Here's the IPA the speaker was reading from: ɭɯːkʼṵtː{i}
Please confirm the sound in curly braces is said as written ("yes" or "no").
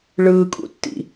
no